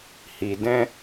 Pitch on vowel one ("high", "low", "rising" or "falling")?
low